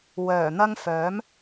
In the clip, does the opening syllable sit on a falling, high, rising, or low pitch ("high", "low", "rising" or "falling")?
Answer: low